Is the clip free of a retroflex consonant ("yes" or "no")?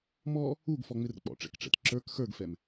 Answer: no